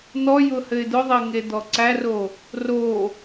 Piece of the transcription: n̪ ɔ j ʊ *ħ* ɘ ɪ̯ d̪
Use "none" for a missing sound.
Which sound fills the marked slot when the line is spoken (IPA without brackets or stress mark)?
h